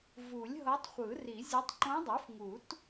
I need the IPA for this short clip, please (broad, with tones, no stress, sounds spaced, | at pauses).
v u˨˩˦ lʲ ɦ ɤ˧˥ tˤ χʷ ɯ˨˩˦ r i˨˩˦ zʲ o˧˥ tˤ ǃ õ˧˥ dˤ u˩˥ f ŋ u˨˩˦ t